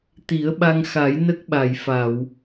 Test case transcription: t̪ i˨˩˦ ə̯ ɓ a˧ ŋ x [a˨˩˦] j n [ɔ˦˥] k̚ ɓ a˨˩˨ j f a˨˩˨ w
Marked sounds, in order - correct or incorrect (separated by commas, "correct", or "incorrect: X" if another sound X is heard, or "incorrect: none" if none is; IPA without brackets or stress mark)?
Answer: correct, incorrect: ə˦˥